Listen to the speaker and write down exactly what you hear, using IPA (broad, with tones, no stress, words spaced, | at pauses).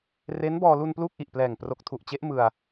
re˦˥nbɔː˧lu˧n pluː˥˩k̚ʔi˨˩ʔplɛː˨˩ŋ pro˨˩k̚tʰu˨˩ʔt͡ɕe˦˥ʔ mɯ˧a̯